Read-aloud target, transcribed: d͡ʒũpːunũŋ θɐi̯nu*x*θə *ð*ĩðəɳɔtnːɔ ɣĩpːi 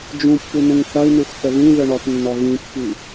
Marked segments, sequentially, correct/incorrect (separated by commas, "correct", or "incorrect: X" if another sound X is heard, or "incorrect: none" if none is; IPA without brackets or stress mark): correct, correct